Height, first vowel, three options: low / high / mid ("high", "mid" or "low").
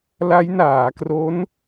low